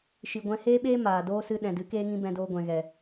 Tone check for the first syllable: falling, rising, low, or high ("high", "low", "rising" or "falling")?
low